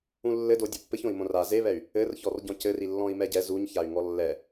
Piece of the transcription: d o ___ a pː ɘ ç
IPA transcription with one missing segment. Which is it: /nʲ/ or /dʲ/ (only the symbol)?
dʲ